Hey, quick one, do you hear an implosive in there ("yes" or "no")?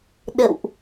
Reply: yes